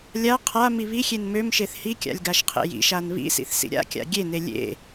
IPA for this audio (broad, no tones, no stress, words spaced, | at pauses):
lʲa qʰa miβixʲen mømʃeθ hikʲa̰lʲ ɡaʃqʰḛjḭʃan βḭsḭθ sḭɾʲa̰kʲa̰ ɡʲene lʲḛ